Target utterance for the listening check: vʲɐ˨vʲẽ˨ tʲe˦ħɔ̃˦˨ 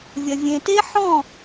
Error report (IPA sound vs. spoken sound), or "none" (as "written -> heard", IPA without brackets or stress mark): tʲ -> t